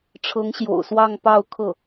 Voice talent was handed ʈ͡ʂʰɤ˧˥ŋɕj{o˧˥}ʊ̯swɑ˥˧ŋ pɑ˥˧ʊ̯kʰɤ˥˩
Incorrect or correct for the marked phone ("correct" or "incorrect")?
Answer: incorrect